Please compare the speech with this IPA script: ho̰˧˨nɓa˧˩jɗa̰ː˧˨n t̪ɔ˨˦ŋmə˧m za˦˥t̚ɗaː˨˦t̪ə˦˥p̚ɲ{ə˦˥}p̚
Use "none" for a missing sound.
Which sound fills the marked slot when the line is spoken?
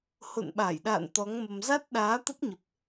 ə˨˩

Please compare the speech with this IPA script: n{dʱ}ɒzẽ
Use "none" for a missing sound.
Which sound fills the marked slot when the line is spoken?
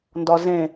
d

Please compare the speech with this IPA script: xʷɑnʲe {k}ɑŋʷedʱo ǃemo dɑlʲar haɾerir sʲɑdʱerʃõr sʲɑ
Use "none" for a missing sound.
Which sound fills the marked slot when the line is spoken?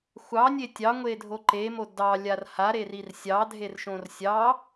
tʲ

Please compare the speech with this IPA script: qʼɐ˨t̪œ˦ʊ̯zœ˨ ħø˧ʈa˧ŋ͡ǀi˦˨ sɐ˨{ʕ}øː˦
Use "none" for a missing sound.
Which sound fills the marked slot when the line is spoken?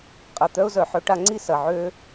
ʕ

